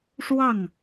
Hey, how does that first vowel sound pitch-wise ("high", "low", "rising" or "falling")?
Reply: falling